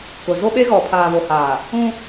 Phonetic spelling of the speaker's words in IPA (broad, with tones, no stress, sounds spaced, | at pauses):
k ʊ˨ z o˦ ɓ e˦ ɣ ɔ˨ pʰ aː˨ β o˨ h aː˨ | ũ˦